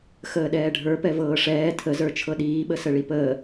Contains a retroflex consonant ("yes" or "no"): yes